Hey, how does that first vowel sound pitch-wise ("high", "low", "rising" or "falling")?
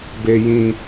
low